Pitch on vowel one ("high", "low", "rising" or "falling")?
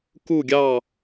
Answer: falling